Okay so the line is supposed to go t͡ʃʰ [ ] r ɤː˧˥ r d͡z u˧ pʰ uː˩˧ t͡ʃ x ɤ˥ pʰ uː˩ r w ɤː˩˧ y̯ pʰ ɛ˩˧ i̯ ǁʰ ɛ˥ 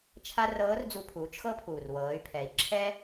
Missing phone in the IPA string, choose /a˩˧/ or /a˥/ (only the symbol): a˥